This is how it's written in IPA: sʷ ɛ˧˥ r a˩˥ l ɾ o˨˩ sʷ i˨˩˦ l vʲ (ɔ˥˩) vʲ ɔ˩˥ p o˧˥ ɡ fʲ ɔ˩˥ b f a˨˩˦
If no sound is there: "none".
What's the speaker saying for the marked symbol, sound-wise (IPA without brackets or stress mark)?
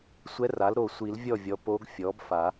ɔ˥˩